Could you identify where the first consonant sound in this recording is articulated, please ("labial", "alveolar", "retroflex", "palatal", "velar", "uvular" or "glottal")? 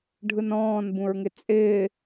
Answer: retroflex